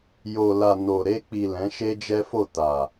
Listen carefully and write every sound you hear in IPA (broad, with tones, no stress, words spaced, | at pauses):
jo˨la˨ no˨ ɾe˧k͡pi˨ lɛ̃˨˦ʃe˦d͡ʒɛ˦fo˦˨ ta˨